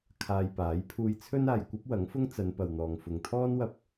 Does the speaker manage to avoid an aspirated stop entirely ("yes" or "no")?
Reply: no